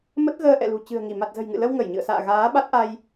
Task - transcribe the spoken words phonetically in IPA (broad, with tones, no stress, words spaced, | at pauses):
mə˦˥t̚ɣəː˧ʔɛ̰˧˨lṳ˨˩ t͡ɕɨ̤˨˩ə̯ŋi˧˩ ma˨˩t̚zə̤˨˩jŋɨ̰˧˨lə˧w ŋə˧˩jɲɨ̰˧˨ə̯sa̰ː˧˨ ɣaː˨˦ɓa˦˥t̚ʔa˧j